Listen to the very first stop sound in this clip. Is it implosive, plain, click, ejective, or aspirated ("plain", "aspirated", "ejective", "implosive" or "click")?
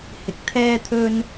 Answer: plain